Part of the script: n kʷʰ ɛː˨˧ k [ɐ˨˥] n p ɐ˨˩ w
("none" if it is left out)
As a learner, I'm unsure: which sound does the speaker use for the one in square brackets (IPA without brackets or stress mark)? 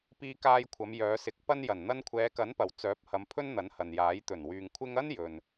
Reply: ɐ˨˥